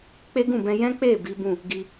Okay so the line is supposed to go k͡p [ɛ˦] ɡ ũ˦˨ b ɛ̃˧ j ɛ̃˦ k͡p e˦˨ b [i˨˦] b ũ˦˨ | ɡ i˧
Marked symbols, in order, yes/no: no, yes

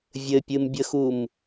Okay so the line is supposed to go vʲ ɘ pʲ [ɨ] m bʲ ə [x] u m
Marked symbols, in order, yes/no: yes, yes

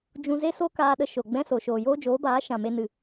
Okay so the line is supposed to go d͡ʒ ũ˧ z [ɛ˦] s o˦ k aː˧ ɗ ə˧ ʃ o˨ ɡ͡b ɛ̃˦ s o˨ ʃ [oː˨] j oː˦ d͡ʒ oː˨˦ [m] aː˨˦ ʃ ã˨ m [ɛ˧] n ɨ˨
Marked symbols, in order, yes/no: no, yes, no, no

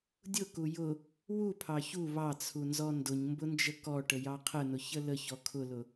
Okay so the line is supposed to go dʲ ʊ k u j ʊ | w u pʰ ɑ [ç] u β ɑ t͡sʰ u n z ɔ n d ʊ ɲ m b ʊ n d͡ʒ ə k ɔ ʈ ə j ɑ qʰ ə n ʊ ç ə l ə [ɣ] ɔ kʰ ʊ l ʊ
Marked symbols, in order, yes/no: yes, no

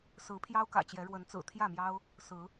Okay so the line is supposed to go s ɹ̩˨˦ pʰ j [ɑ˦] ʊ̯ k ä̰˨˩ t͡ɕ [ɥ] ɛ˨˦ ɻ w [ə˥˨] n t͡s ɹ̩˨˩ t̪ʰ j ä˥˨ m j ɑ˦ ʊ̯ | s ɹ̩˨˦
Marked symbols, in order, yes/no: yes, no, no

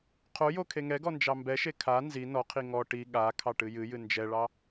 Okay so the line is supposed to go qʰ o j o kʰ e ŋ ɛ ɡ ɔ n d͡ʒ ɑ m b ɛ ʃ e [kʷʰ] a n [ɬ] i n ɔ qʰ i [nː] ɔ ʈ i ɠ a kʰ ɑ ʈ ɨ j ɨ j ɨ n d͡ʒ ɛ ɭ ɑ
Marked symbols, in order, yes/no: no, no, no

